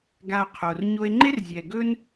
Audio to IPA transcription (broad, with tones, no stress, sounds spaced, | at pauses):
ɡ a˧ o̯ qʰ o˨ r ɲ o˦ e̯ ŋ͡ǃ e˦ r zʲ ɛ˨ ɡ ɵ˦ n